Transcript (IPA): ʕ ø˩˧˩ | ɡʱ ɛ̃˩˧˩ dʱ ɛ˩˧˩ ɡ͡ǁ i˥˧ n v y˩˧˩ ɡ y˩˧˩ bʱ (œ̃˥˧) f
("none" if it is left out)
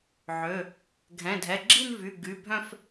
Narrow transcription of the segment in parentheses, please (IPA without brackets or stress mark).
œ̃˥˧